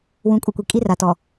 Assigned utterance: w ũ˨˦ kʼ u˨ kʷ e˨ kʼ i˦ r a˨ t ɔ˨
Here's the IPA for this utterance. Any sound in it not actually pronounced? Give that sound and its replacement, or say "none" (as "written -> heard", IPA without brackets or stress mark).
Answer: e˨ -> i˨